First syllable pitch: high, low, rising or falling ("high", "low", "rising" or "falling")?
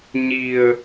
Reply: low